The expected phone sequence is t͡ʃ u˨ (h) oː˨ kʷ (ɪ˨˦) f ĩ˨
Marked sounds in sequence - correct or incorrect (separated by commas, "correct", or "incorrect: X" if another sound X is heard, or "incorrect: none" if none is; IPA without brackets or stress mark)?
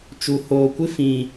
correct, incorrect: ɪ˦